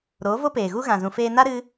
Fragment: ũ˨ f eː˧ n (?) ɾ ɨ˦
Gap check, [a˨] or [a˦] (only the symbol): a˦